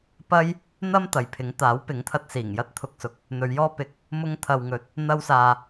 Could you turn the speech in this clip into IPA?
p ɐ˥ j | n̪ ɐ˥ m t̪ ɐ˨ j pʰ ɪ˨˥ ŋ t̪ aː˨˥ w p ɪ˨˥ ŋ t̪ʰ ɐ˧ t̚ s iː˨˩ ŋ j ɐ˥ t̚ t̪ʰ ʊ˨ k̚ s ʊ˨ k̚ | n̪ ɵ˨˧ ɥ j ɔː˥ p ɪ˨˥ k̚ | m ʊ˥ ŋ t̪ʰ ɐ˨ w ŋ ɵ˨˥ t̚ | n̪ ɐ˥ w s aː˧

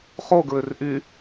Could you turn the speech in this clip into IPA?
χ o ɡ ɹ ø r ʔ y

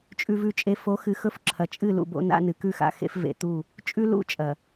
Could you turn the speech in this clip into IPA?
t͡ʃʼ ʉ˨ v ʉ˨ t͡ʃʼ e˨ f o˨˦ x ɨ˨ x ɵ˦ f ǁʰ ɐ˨ t͡ʃʼ ɨ˦˨ l ṵ˨ b o̰˦ n a̰˦ n ɨ˨ k ʉ˦˨ x a̰˦˨ x ḛ˦ f v ḛ˨ t̪ u˦˨ | t͡ʃʼ ʉ˦ l ṵ˦˨ t͡ʃʼ ɐ˨

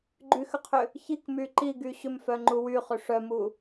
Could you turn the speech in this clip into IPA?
ɡ͡ǃ y x ʏ qʰ ʏ | ç i k m y ǃ i ɡ y ɕ ʏ m f œ ŋ͡ǃ u w y χ ʏ ʂ œ m u

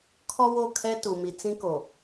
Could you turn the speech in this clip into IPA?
kʰ ɔ˦ w o˦˨ kʰ ɛ˦ t u˨ m i˨ t͡s ĩ˦ k o˨

